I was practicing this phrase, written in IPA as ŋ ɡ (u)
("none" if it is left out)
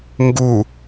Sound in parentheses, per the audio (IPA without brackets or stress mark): u